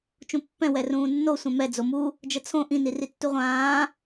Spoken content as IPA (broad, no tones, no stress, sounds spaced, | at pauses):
t͡ʃ ũ pː ɛ̃ w ɛ r ũː nː o sʷ ɛ̃ m ɛ d͡z o m u | d͡ʒ ə t͡sʰ õ ʔ ĩ n i r i tː u ʁʷ ãː